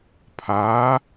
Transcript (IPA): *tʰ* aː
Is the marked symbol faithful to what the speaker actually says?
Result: no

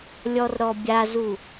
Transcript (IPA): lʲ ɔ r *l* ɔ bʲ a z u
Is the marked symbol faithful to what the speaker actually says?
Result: no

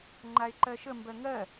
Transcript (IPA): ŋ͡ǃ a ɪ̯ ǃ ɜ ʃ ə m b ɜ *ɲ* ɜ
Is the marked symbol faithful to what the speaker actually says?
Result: no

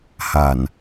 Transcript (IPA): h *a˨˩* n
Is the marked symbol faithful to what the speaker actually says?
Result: yes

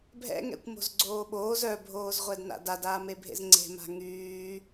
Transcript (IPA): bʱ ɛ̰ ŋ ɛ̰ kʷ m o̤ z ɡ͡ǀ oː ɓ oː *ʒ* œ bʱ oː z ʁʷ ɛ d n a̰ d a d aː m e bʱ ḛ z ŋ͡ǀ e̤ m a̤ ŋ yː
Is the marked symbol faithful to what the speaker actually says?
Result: no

